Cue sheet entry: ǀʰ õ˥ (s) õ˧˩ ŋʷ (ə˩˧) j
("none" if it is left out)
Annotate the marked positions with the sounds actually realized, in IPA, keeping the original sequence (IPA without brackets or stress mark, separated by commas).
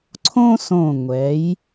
s, ɛ˩˧